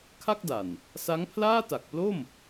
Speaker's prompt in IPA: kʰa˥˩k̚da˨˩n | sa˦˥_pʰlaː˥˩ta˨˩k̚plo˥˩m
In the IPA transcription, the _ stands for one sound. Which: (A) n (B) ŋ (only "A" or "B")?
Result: B